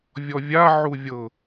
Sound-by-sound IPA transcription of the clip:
vʲ ɔ vʲ a ʕ u vʲ ɤ

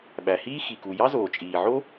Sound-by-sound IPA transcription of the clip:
ɓ æ˩ h iː˥ x i˩ k u˩ j ɑ˥ z oː˩ t͡ʃʼ iː˩ ʕ o˥

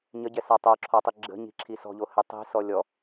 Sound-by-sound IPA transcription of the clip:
ɲ ə ɟ ɛ s a tˤ o ǁʰ ɔ tˤ i ɡ͡ǁ ə̤ ɲ i̤ ǁʰ i s ɔ̤ ʎ o h ɛ tˤ i̤ s ɔ lʲ ɔ

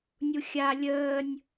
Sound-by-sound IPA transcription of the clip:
nʲ u xʲ a lʲ əː nʲ

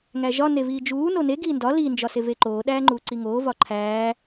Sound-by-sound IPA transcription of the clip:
ŋ æ ʒ ɒ n e v iː d͡ʒ uː n o n e ɡ iː n d ɒ l i n d͡ʒ ɒ s e v e ǃ oː ɗ æː ŋ͡ǃ uː ǀ i ŋ oː v ɒ ǃʰ æː

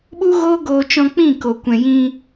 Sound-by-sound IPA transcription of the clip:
ɓ u˦ ɣ oː˦ ɡ oː˧ t͡ʃ ɔ̃˧ k͡p ĩ˦˨ k o˨ kʷ ɛ̃˨ j ĩ˧

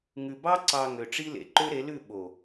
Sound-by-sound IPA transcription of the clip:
ŋ ʉ˨ b ɑ˦ ǀ ɑ˨ ŋ ø˨ ʈ͡ʂ i˦ l ḛ˨ ǃ ø˦ ɾ e˨˦ l ʉ˦˨ ɓ o˨

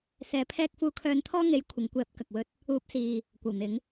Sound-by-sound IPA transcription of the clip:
s ɛː˨˧ pʰ ɛː˧ k̚ f uː˨ kʰ œː˨ n t̪ʰ ɔː˧ ŋ e˨˥ j kʷʰ ɪ˨˧ ŋ kʷ ɛː˨˥ p̚ k ɐ˨ k̚ w ɵ˧ t̚ | uː˨˥ p̚ s iː˨ | kʷ ɐ˨˩ w n̪ ɪ˨˧ ŋ

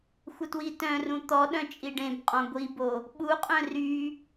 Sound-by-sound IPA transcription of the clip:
xʷ ə t w i t œ̃ r ũ t̪ ɔ ɗ œ̃ t͡ʃʼ i ɖ ẽ b qʼ ɔ̃ ɡʷ i b o | ɓ u qʼ œ̃ r y

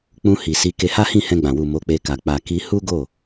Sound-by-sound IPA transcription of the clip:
k͡p ũ˧ h i˨ s i˨˦ k e˧ h a˦ h ĩ˦˨ h ɛ̃˧ ɡ͡b ã˨ w u˨ m o˨˦ k͡p e˧ k a˨ k͡p a˨ k i˧ h u˦ ɡ o˦˨

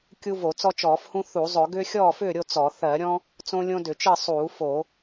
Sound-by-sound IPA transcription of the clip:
kʲ u˦ v o˧˩˧ t͡s ɔ˦ t͡ʃ ɔː˧˩˧ f h ũ˦ θ u˧˩˧ zˤ ɵ˧˩˧ ɡ ʏː˦ xʲ ɔː˥˨ f ʏː˥˨ ɾʲ o˥˨ t͡s ɔ˧˩˧ θ ɜ˧˩˧ ɾʲ ɔ̃˦ | t͡s õ˦ lʲ õ˦ d ʏ˧˩˧ t͡ʃ ɘ˥˨ sˤ uː˧˩˧ f o˧˩˧

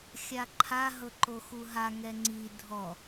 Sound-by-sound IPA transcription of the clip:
xʲ a ǃʰ a ɦ ɤ ǃ o x u ɦ a ŋ ɛ ŋ͡ǀ i dʱ ɔ

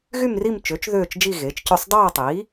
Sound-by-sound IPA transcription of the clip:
ɣ y˥˧ m r i˥˧ m t͡ʃ ø˩˥ t͡ʃ ð øː˥˧ t͡ʃ d͡ʒ i˥˧ ɣ eː˩˥ t͡ʃ c ø˥˧ sˤ dˤ ɑː˥˧ tˤ iː˩˥

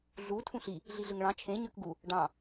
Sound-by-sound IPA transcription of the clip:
ɮ u tʰ ũ ɬ i | ɮ i ɮ ɯ ŋ ɭ ɑ̃ t͡ʃʰ ẽ ɲ ø k ɡ u | ɖ ɑ̃

